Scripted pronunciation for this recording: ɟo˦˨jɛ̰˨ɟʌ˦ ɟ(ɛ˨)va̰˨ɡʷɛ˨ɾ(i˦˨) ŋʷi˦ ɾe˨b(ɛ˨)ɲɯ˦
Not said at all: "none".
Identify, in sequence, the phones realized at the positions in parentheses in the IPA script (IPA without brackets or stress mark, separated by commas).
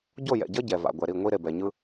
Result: ɛ˨, i˦˨, ɛ˨